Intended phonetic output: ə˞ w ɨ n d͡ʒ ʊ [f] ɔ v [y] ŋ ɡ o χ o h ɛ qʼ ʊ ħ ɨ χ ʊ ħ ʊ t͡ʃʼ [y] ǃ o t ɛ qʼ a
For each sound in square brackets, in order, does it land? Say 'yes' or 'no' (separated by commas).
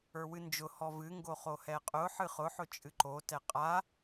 no, no, no